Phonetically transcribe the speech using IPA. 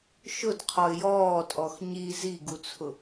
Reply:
ʃ ʊ d qʰ ɔ ɪ̯ j ɔː tʼ ɔ x ɲ i z i ɡ u t͡sʰ ʊ

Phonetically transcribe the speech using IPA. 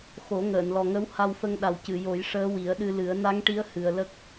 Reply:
x o˨˩˦ ŋ əː˨˩˨ n l ɔ˨˩ ŋ ə˧˥ w h a˧ w f ə˧ ŋ ɗ a˨˩ w c ɨ˨˩˨ j o˨˩˦ j ʂ əː˧˥ w i˨˩˦ ə̯ ɗ ɨ˧ l ɨ˨˩˦ ə̯ n a˧˥ ŋ ʈ i˧˥ ə̯ h ɨ˨˩ ə̯ l ə˦˥ k̚

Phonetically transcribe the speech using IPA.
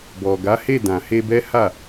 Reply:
b ɔ˨ ɡ a˨˦ h e˦˨ d ã˨ h e˧ b ɛ˦ h a˦˨

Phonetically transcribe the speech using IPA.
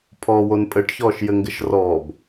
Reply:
pʰ ɔː w o n pʼ ɘ ʈ ç ɔː ʃ j ɘ ŋ ɡ ɘ ʃ r ɔː b

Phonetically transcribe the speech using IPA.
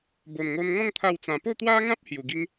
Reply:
b o˨˩ n ŋ o˧ n ŋ ɔ̃˥˧ ŋ t̪ʰ a˥˧ w t͡s ã˧ p o˥˧ t̪ w a˦ ŋ ã˦ p̚ h j u˨˩ ɡ i˦ ŋ

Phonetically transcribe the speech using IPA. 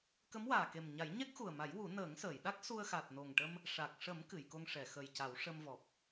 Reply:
k ə˧˥ m w aː˨˩ k e˨˩ m ɲ a˨˩˦ j ɲ ɛ˦˥ k̚ x u˨˩ ə̯ m a˨˩˦ j w u˨˩˦ n əː˨˩˦ ŋ s əː˨˩˨ j ɗ a˦˥ k̚ s u˧ ə̯ x a˨˩ t̚ n o˨˩ ŋ ʈ ə˧ m | ʂ a˨˩ k̚ ʂ ə˨˩˦ m k ɨ˨˩˨ j k o˧ ŋ ʂ ɛ˨˩˨ x ə˨˩ j c a˨˩˦ w ʂ ə˧ m v ɔ˨˩ p̚

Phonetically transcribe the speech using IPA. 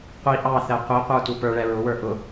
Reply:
qʷ i ʔ ɑ θ ɛ qʷ i qʷ ə˞ t u p ə˞ ɭ ɛ ɹ ʊ w ə˞ ʔ ʊ

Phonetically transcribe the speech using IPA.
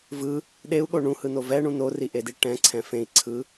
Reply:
v ɯ | ɗ e u̯ ɠ o ɳ ũ h ɯ n o v ɛ ɳ ũ n o r i ʔ e d i ʈ ɛ̃ ǀʰ ɛ̃ f ẽ i̯ ǀʰ ɯ

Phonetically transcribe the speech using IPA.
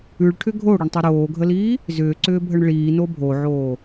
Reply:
ʉ ɭ ʈʰ ʏ ɡʱ o ɽ ʏ ɳ tˤ ʏ ɾ oː ɡʱ ə l iː | z ʏː ǀ ʏː bʱ ə ɳ ɭ iː n o bʱ o ʕ oː

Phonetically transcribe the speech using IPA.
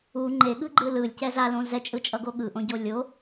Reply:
u ŋ͡ǃ e ɠ ɯ ɡ͡ǃ ɯ l ɯ lʲ c ɛ z a l õ z ɛ t͡ʃʼ ɯ t͡ʃʼ ʌ ɡ o ɠ ɯ ʔ õ ɟ o lʲ o

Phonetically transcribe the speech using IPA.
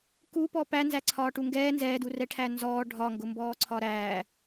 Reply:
k u p ɔ p æ n z æ ǀʰ ɒː ʈ u ŋ ɡ ɛː n z ɛː d u r ɛ ʈʰ æ n z ɔː ɖʱ ɒ ŋ ɡ ʊ m b ɔː ǀʰ ɒ ɾ æː

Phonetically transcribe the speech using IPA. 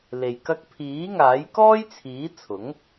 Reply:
l e˨ j k ɐ˧ k̚ pʰ iː˨˥ ŋ aː˨˥ j k ɔː˥ j t͡sʰ iː˨˥ t͡sʰ ʊ˨˥ ŋ

